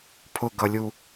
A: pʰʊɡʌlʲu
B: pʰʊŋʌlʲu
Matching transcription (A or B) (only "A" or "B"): A